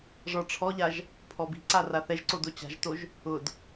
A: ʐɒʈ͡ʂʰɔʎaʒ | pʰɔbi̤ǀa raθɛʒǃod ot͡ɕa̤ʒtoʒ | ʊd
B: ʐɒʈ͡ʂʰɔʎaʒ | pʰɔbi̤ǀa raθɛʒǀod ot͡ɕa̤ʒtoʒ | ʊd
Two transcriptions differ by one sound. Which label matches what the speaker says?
B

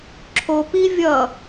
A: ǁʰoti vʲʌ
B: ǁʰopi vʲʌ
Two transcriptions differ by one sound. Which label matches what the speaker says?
B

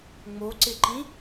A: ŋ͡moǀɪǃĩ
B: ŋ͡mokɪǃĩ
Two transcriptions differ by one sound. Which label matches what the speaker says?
A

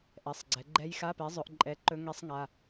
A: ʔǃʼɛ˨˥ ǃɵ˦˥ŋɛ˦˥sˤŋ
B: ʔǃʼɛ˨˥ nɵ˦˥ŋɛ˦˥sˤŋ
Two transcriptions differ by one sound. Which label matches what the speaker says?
A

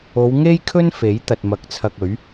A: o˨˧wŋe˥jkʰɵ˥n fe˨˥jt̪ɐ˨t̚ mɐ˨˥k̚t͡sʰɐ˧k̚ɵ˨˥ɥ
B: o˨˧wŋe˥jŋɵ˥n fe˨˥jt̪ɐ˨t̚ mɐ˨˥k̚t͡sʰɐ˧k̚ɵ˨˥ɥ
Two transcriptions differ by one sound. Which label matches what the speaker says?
A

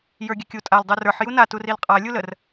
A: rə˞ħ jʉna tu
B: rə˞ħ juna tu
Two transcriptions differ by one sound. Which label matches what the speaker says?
B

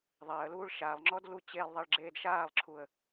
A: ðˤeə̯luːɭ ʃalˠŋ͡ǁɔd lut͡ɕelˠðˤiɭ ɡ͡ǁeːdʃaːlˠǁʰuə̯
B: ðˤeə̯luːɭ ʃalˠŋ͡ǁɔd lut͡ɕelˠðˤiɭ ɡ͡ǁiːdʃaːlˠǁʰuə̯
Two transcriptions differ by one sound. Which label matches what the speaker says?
A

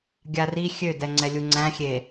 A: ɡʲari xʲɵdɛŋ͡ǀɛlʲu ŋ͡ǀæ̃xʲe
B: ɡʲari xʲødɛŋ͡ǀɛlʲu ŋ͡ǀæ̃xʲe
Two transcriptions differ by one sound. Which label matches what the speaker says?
B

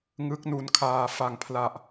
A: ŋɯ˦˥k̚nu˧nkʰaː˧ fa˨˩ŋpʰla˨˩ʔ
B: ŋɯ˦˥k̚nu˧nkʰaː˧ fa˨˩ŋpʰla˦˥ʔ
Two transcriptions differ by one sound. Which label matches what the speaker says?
A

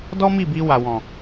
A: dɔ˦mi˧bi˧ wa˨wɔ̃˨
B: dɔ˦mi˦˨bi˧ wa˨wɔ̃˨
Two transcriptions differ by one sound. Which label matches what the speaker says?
B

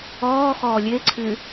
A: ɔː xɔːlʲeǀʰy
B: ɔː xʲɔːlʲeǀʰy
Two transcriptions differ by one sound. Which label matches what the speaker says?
A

